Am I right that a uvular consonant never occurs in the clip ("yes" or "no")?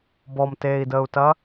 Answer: yes